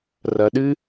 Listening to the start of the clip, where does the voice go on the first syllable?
low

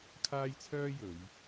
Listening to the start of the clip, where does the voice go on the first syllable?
high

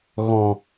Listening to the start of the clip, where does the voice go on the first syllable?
low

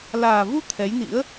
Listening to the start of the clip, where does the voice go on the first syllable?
low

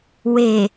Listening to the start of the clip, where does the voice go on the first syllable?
low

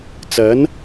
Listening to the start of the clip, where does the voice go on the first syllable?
rising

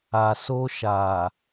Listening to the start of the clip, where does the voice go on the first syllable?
low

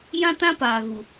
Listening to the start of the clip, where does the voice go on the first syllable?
high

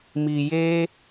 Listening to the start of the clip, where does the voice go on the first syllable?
low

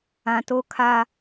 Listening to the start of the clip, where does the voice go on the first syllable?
low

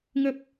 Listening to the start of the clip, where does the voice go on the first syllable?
low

